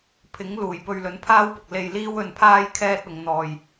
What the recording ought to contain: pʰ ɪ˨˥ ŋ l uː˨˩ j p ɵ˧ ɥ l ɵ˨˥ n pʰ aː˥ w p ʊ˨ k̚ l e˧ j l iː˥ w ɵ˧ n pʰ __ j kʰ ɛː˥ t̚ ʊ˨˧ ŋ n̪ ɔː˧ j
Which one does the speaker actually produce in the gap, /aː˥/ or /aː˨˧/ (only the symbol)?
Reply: aː˥